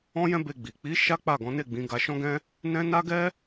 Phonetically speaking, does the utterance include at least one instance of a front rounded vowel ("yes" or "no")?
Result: no